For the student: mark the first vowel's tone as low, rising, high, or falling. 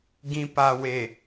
low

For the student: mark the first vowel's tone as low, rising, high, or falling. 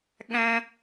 low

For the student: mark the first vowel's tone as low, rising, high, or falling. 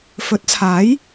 rising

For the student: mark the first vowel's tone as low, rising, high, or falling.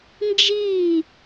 falling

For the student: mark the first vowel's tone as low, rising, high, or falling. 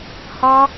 high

